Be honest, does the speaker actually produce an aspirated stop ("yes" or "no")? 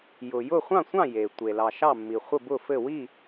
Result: no